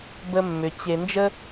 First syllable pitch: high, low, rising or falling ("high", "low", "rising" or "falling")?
high